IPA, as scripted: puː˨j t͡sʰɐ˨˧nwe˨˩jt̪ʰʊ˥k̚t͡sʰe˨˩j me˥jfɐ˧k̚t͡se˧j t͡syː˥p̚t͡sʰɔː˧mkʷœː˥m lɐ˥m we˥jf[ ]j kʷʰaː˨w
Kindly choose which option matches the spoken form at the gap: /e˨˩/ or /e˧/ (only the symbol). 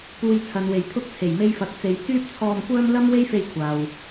e˧